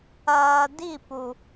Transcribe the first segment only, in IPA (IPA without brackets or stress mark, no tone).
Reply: ɐː